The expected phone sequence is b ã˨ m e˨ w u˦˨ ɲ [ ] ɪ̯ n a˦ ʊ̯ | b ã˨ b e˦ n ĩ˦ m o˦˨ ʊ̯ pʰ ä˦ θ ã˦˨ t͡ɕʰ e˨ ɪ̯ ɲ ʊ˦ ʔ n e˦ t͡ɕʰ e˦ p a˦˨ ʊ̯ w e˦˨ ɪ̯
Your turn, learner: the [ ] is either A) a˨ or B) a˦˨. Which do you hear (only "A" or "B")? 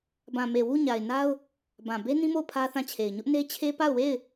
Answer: A